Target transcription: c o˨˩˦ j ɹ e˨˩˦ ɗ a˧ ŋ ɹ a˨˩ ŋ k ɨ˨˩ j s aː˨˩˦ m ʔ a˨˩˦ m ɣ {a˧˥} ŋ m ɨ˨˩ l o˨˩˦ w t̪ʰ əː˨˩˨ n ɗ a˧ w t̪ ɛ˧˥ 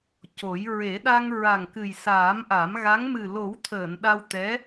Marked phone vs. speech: correct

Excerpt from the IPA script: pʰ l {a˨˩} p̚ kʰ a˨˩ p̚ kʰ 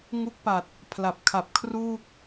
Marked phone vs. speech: correct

